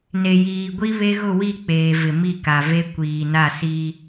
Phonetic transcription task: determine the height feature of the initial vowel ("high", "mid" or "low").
mid